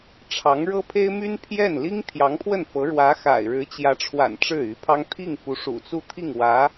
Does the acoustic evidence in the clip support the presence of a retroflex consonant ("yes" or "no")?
yes